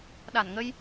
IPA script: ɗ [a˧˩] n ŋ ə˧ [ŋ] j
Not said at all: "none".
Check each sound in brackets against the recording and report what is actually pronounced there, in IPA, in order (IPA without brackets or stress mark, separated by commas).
a˧˩, none